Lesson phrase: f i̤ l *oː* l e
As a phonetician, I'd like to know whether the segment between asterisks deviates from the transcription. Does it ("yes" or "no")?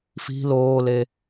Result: no